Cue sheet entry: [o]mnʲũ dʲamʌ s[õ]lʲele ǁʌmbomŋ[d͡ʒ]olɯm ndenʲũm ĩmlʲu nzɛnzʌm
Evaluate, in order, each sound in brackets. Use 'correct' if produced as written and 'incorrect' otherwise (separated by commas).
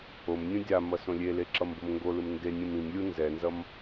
correct, correct, incorrect